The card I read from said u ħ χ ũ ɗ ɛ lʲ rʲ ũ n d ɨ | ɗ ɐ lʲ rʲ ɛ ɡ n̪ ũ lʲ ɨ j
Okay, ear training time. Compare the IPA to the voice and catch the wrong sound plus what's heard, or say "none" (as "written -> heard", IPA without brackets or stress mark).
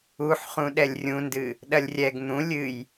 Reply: none